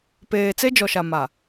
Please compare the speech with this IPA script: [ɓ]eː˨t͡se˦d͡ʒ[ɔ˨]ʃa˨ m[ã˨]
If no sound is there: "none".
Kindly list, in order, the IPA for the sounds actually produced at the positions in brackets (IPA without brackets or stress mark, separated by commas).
p, ɔ˨, a˨